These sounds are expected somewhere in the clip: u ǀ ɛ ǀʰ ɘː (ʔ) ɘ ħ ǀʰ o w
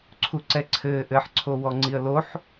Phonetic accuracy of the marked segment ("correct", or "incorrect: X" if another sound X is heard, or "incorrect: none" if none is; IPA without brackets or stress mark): correct